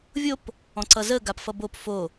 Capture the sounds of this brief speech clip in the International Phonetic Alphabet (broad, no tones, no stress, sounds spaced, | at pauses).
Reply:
vʲ o p | ɔ̃ ǀ ʌ z ə ɡ a p f ʌ b o p f o